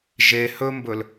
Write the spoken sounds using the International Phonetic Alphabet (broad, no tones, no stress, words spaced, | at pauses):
ʒe hɵmbɵl